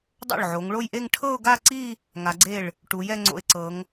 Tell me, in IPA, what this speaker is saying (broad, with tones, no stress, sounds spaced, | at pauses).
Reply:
dˤ o̰˥˩ ɭ ʕ o˩˧ ŋ ɭ o˥˧ j ʔ e˥˧ ŋ ʈʰ ɤ˥˧ ʊ̯ ɡ a˥˧ ǀ i˥˧ | ŋ a˩˧ ɡ͡ǀ e˥˩ ɭ | ʈ u˩˧ j ɛ˥˧ ŋ͡ǀ o̰˧ ɪ̯ ǀ ɤ˩˧ ŋ